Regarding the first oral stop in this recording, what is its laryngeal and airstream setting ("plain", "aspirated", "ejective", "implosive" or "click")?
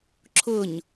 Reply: click